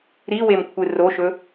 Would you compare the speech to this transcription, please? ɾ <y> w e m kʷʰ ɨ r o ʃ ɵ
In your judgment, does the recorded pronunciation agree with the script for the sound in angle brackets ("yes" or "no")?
no